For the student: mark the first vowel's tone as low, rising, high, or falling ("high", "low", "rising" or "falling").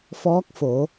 rising